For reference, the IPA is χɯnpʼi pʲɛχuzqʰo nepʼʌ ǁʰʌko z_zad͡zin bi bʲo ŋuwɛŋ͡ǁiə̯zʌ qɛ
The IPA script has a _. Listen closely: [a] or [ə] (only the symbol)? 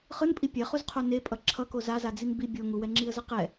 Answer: a